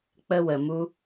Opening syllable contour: high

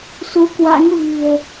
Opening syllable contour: rising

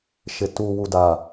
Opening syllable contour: low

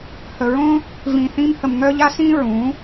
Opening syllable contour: low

